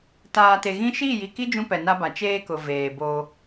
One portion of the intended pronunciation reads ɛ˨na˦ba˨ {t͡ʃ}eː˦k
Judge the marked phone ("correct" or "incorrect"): correct